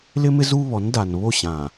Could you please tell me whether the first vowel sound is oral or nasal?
oral